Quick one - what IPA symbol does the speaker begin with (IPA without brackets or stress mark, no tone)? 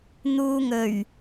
n̪